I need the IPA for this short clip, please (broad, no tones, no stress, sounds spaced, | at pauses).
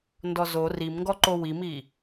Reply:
n d ɔ z o r i m ŋ ɡ ɔ ǃ o w i m i